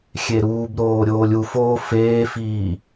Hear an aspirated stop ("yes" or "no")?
no